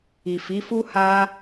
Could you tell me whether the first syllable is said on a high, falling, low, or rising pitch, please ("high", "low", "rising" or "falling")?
low